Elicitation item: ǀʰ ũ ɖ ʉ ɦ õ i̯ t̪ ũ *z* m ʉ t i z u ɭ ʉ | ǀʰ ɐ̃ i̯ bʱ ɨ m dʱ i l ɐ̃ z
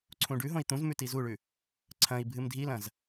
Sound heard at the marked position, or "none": z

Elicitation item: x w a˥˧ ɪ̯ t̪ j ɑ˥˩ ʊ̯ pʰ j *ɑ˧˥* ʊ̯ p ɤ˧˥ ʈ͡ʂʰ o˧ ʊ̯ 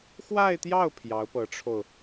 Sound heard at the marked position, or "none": ɑ˧˥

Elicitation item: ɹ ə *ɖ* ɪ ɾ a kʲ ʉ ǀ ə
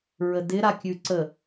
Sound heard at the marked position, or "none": d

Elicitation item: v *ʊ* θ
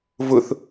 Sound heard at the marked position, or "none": ʊ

